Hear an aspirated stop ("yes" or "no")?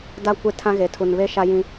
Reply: yes